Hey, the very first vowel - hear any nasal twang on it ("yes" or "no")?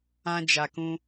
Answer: yes